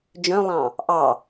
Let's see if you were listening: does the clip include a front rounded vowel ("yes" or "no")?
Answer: yes